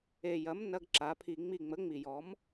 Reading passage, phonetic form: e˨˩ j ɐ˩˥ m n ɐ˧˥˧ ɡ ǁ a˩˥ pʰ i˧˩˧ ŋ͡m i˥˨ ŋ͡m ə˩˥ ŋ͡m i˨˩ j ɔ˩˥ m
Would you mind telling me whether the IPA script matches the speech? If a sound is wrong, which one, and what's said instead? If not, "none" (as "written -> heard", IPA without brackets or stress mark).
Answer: none